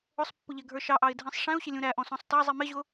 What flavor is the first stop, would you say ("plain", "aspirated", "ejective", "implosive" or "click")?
plain